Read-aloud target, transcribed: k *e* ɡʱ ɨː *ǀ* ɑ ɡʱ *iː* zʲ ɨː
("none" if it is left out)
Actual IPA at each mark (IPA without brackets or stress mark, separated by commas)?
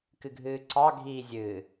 ɨ, ǀ, iː